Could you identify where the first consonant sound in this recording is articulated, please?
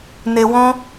alveolar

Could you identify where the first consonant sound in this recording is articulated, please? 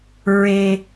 alveolar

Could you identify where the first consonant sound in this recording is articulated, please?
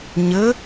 palatal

